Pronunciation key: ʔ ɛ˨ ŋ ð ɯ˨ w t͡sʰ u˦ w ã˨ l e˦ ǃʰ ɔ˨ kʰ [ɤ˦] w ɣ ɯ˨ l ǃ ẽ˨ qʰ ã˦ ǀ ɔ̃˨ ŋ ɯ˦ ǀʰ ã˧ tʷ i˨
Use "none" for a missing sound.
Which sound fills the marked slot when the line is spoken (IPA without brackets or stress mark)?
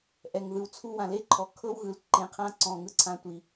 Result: ɤ˦